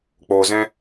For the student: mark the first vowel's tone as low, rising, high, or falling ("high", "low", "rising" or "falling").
low